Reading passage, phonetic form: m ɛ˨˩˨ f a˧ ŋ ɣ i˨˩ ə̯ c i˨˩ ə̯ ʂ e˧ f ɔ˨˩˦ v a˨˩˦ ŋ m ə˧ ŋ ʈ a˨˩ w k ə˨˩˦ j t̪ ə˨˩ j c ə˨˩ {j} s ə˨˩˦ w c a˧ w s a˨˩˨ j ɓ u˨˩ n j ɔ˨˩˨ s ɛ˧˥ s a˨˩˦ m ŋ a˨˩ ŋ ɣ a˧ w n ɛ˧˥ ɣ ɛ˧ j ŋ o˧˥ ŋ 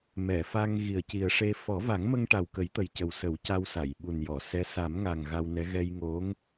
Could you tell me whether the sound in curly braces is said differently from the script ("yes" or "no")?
yes